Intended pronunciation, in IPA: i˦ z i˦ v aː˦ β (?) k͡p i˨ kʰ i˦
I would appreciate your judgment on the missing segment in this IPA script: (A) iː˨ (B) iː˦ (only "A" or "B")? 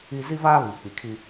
A